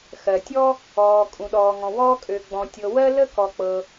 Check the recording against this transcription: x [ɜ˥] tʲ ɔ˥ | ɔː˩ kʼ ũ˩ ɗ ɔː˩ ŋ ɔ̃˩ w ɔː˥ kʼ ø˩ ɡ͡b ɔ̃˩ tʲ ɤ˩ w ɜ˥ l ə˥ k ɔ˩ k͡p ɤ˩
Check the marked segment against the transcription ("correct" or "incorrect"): incorrect